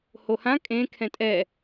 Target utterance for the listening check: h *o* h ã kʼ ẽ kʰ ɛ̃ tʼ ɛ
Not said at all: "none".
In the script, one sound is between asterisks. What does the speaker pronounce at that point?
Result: o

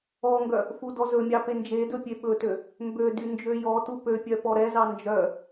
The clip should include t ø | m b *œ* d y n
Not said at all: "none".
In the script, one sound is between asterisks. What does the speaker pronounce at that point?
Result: ø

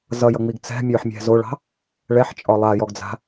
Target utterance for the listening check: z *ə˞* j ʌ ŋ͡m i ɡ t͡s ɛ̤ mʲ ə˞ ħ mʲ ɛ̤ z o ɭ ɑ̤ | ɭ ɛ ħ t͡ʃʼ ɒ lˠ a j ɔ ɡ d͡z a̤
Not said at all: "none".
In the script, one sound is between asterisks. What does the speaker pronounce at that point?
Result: ʌ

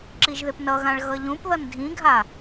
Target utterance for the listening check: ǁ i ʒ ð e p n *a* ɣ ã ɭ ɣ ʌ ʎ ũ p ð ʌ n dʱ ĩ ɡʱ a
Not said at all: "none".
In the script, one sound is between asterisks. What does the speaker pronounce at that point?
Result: ʌ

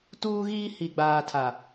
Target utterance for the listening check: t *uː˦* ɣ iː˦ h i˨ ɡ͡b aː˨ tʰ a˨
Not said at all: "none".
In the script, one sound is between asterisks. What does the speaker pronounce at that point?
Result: uː˦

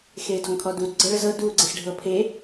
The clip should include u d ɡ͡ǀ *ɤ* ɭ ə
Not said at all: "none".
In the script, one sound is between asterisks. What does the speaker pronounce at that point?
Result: ɤ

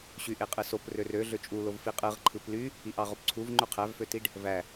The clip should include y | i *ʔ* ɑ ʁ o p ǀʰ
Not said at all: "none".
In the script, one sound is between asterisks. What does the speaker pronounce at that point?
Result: ʔ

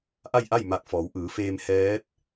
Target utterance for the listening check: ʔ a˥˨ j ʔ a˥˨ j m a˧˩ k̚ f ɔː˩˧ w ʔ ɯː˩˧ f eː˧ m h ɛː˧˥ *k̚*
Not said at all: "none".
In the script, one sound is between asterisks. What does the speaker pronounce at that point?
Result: t̚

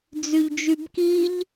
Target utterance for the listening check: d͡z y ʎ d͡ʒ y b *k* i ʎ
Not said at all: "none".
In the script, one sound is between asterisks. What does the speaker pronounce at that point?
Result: k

